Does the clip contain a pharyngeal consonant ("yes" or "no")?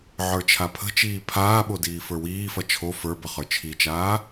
yes